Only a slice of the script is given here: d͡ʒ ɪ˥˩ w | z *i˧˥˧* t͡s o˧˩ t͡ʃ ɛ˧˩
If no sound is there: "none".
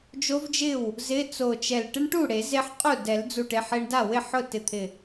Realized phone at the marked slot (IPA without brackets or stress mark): ɪ˧˥˧